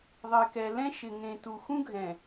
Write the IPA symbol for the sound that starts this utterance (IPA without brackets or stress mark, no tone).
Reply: ðˤ